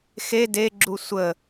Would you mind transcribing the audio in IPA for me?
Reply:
x e d e ɡ͡ǁ u sʷ ə

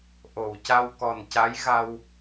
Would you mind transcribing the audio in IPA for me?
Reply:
ʔ o˨˩˨ w c a˧ w k ɔ˨˩ n c a˧˥ j ɣ a˧ w

